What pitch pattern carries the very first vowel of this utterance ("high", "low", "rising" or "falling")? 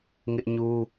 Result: high